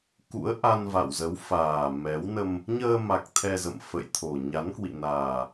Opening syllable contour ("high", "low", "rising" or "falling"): rising